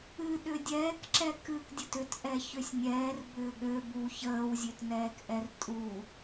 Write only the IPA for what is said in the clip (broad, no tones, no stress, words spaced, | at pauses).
ɨ ɗʏdʲɛːkǁɛ kɨkdʲət ʏtʔɛ çøsʲnʲɛːr bʏːɠø bu çəːwzʲøtnɛːkʔɛr tʼu